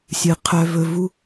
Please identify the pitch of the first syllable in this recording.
low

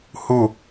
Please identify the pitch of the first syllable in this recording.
falling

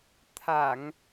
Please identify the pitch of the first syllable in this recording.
low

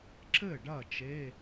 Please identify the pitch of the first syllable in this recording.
falling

